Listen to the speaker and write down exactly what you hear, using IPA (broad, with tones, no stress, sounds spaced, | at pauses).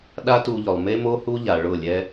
ɗ a˦ t u˧ ʎ ʊ˨ lˠ m e˦ m o˦ h u˦ ʎ a˨ ɭ ʊ˦˨ lʲ ɛ˦